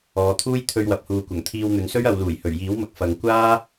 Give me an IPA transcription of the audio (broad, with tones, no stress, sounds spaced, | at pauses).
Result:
ɔː˨˧ t̪ʰ uː˥ j t̪ʰ ɵ˧ ɥ w ɐ˨ p̚ h uː˨ kʷ ɐ˨˩ ŋ t̪ʰ iː˧ w n̪ ɵ˨˧ n s ɵ˥ ɥ ɐ˨˧ w l uː˨˩ j h ɵ˨˩ ɥ j iː˨˥ w m ɐ˨ k̚ f ɐ˨ ŋ kʷ aː˥